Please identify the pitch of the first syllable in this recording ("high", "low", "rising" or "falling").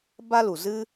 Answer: high